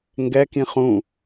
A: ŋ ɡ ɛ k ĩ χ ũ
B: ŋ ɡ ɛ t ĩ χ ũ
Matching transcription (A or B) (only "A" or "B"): A